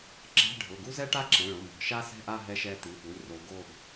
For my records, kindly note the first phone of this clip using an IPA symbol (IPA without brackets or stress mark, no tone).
ǁ